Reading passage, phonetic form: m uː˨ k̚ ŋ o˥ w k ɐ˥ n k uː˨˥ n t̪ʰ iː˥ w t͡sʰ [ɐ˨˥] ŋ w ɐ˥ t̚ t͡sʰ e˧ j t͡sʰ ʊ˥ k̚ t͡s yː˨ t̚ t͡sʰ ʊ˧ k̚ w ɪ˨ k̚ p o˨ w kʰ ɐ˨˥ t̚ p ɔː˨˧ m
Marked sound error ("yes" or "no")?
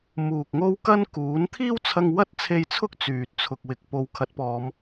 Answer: yes